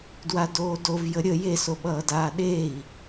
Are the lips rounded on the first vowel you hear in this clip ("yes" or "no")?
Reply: no